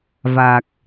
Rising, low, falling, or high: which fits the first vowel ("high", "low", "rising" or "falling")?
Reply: low